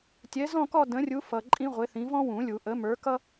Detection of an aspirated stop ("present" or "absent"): absent